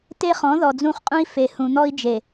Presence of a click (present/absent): absent